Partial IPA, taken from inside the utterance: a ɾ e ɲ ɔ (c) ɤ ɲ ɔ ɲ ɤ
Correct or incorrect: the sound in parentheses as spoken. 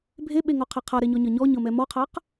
incorrect: ɲ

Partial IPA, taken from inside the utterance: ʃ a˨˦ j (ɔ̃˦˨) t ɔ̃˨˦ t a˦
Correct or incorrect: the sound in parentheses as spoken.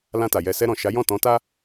correct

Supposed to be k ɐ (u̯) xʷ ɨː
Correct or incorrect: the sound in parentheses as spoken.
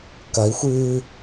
incorrect: i̯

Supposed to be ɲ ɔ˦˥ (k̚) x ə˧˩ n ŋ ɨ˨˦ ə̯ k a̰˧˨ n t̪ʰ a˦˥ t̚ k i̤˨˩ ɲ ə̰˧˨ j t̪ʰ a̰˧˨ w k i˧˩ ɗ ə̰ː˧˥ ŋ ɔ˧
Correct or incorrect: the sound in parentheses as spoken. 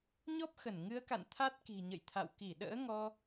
incorrect: p̚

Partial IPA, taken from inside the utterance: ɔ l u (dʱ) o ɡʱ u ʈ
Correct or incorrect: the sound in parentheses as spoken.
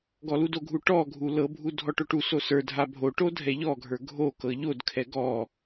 incorrect: d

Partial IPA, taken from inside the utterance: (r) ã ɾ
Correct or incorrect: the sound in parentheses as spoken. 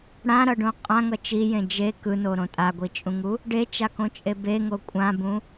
incorrect: ɽ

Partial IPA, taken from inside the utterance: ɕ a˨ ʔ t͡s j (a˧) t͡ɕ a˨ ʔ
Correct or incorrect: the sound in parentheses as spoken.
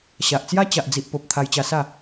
incorrect: a˦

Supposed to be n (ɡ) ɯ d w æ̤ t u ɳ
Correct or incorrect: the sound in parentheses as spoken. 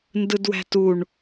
incorrect: d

